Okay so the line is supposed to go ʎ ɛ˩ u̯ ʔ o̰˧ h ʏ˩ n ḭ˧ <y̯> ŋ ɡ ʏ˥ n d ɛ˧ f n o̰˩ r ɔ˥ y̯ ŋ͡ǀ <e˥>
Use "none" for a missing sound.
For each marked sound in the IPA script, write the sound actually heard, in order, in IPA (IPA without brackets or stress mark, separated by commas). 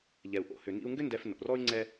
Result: u̯, ɛ˥